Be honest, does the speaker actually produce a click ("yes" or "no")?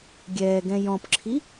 yes